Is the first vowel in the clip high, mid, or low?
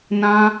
low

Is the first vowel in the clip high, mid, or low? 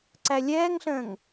low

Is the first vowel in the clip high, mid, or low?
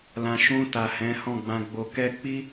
low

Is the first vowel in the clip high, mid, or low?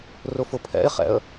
high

